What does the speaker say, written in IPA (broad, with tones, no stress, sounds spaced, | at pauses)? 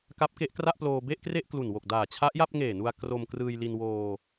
k a˦˥ p̚ k e˦˥ ʔ k r a˥˩ ʔ p l oː˧ b e˥˩ ʔ k r e˥˩ ʔ k l u˨˩ n w o˨˩ k̚ d aː˨˩ t͡ɕʰ a˦˥ ʔ j a˥˩ p̚ ŋ eː˨˩ n u˧ a̯ k r o˧ m k r ɯː˧ j l i˧ n w oː˧